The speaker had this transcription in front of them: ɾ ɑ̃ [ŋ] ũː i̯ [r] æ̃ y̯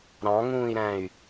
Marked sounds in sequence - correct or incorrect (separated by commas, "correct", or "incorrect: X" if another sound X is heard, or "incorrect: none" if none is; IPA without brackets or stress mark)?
correct, incorrect: ɾ